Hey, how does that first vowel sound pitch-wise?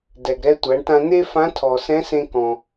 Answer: low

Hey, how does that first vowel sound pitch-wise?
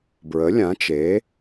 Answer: rising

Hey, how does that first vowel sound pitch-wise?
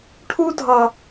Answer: high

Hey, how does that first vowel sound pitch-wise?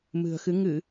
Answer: low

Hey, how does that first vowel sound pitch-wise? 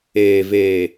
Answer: low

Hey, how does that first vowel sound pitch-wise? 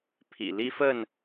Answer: low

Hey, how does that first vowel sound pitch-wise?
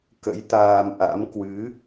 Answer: rising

